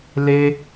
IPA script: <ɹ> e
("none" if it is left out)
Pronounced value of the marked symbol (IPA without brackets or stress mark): l